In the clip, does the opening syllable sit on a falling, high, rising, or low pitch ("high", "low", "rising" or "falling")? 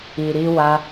low